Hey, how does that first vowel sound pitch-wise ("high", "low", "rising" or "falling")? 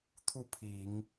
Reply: falling